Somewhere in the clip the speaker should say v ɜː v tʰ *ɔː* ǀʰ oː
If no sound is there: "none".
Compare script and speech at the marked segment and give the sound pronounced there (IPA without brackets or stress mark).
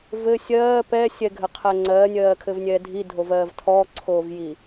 ɔː